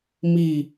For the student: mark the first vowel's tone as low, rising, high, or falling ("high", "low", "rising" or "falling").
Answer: falling